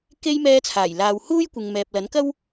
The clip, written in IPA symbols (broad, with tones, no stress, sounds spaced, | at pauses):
k e˥ j m ɛː˥ t͡sʰ aː˨˩ j l aː˨ w h uː˥ j kʷ ɪ˨ ŋ m ɛː˨ p̚ l ɐ˨˥ n k ɐ˥ w